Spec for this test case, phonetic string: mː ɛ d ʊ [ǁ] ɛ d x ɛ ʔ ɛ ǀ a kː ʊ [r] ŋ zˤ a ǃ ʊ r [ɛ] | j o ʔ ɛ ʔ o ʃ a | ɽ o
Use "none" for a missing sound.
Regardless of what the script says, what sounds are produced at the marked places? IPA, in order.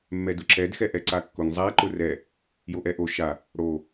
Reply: ǁ, none, ɛ

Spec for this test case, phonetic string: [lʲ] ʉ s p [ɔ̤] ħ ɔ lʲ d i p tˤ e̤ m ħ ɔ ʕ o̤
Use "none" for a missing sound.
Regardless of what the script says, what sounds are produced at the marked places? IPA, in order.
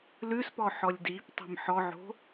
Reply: l, ɔ

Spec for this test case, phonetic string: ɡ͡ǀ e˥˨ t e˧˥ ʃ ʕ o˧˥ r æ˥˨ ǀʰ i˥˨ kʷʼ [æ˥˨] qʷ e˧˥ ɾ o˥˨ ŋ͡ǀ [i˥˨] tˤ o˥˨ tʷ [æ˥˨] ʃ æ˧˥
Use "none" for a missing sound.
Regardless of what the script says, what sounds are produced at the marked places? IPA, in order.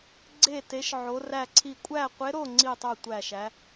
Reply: æ˥˨, i˥˨, æ˥˨

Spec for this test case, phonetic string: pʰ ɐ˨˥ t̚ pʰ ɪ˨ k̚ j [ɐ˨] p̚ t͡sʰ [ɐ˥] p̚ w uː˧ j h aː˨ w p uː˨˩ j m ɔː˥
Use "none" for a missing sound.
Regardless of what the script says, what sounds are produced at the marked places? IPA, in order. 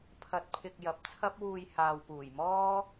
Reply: ɐ˨, ɐ˥

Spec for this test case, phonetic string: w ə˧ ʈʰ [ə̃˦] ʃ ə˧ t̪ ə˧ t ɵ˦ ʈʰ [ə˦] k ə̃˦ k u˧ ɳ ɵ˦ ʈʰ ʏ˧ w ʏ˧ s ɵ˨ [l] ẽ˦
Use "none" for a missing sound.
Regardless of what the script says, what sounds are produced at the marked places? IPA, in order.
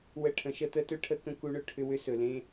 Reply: ə̃˨, ə˦, l

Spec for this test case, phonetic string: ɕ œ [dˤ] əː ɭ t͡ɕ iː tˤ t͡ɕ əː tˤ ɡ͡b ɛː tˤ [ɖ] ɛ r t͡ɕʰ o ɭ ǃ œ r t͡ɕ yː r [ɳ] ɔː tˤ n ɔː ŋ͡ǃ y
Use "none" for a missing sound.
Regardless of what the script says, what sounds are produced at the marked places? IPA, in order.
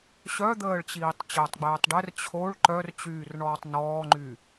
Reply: d̪, ɖ, ɳ

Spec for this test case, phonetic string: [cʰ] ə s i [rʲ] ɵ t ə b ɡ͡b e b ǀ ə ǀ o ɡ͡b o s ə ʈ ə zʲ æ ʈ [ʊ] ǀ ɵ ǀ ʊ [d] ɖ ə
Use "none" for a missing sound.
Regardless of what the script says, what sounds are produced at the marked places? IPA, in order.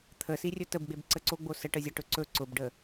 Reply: t̪ʰ, rʲ, ɵ, b

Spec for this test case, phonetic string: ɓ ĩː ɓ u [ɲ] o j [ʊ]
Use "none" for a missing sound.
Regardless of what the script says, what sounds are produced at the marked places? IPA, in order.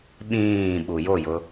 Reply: j, ʊ

